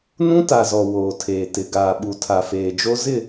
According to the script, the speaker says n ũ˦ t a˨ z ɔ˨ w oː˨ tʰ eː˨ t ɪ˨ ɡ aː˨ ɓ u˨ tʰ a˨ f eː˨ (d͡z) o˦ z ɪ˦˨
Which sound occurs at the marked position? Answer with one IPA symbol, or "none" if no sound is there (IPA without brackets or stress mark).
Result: d͡ʒ